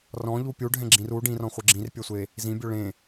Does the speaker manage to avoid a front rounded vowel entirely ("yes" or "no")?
yes